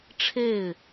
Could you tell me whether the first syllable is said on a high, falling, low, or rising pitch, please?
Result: falling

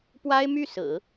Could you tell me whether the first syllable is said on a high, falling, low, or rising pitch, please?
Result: high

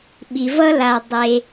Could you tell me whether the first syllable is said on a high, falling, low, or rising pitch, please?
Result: low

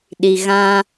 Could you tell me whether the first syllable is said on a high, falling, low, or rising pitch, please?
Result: low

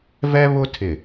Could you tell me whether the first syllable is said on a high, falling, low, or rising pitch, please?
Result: high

